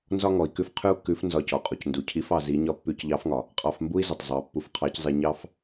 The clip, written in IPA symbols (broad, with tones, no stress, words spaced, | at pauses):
nzɒ˥ŋɔ˩˧i̯kʉ˧˥f qʰʉ˥u̯kːʉ˧˥f nzɒ˧cɔ˩qʼu˩c ndu˩˧cʰi˧˥f ɑ˧zi˧˥ɲɒ˥ pːʉ˧˥cʎɑ˧˥fŋɒ˩ | qʼɑ˧fmbu˥i̯zə˩tˤzˤɑ˩˧ pːu˧fqʰɑ˧˥czˤi˧ ɲɑ˥f